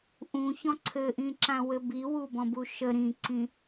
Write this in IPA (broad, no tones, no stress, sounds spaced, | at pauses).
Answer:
ʔ ũ ç ɔ̃ ǀʰ ɘ ʔ ĩ ǁ ã w ɘ b i w u b ɔ̃ b u ʃ ə ɾ ĩ ǀ ĩ